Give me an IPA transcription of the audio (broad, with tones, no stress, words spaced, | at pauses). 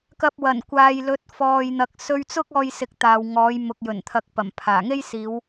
kɐ˧p̚wɐ˨˩n kʷaː˨jlɵ˨˥t̚ fɔː˨jn̪ɐ˨k̚ sɵ˧ɥt͡sʊ˥k̚ ɔː˧jsɪ˨k̚ t̪aː˨wŋɔː˨˥j mʊ˨k̚jɵ˨˩nt̪ʰɐ˨˥k̚ pɐ˨˩mpʰaː˨˩ŋe˥jsiː˨˧w